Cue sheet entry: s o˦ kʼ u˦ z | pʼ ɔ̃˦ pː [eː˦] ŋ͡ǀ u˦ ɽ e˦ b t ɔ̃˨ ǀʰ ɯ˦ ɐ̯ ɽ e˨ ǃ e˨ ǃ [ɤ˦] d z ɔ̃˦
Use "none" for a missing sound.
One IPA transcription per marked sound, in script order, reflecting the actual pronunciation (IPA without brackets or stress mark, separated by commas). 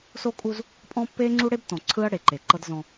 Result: eː˦, ɤ˦